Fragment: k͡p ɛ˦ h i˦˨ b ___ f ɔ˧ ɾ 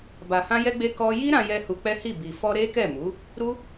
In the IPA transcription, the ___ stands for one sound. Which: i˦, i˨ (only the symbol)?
i˨